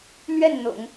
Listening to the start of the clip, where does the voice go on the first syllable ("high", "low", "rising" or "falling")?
falling